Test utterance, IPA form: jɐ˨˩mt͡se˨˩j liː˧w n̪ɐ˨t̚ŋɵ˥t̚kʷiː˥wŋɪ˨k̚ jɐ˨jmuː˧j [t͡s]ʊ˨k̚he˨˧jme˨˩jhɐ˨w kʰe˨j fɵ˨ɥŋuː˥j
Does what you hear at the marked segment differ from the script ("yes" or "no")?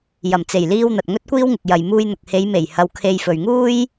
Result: yes